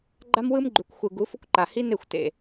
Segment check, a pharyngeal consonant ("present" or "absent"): absent